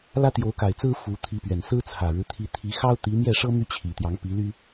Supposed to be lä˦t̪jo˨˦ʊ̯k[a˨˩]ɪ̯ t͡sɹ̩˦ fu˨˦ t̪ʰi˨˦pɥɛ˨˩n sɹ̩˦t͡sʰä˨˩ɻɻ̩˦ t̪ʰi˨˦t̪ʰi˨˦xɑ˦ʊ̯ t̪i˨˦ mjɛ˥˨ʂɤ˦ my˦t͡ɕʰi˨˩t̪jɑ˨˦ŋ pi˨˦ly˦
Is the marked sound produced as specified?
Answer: yes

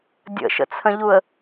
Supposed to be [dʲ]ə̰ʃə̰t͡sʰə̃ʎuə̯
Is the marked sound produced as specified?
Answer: yes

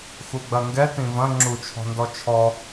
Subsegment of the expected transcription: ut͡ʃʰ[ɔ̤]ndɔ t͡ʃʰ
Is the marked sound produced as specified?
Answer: yes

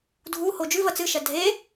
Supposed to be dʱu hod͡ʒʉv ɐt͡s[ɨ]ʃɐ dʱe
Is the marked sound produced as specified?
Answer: yes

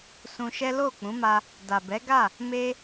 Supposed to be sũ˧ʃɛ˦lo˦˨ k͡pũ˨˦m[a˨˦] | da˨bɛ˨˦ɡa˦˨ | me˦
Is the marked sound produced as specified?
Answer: no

